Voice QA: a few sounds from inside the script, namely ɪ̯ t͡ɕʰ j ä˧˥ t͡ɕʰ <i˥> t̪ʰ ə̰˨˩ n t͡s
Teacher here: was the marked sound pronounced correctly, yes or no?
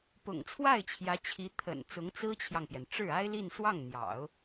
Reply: no